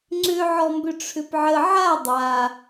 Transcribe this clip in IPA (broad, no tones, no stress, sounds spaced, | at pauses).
ŋ͡ǀ ʏ ʕ ɔ m b ʏ ʈ͡ʂʰ ʏ p ʕ ə ʕ a dˤ a